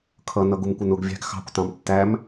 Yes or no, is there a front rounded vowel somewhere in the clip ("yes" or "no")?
no